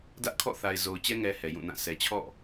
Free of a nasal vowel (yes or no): no